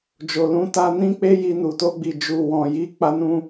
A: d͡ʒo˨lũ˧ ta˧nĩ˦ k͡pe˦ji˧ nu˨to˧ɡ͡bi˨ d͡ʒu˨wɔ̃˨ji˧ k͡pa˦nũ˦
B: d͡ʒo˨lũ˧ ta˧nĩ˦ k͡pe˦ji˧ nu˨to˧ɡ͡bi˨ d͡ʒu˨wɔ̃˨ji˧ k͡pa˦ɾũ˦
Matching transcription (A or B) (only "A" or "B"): A